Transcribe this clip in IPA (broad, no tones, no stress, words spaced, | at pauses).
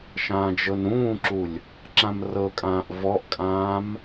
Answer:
ʃãːd͡ʒɤnɾũːǁulʲ | ǁãmrɤkʼãːʔ vɔʔkʼãːm